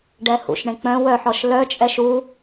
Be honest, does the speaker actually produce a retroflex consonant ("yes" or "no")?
yes